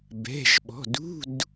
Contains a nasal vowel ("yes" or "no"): no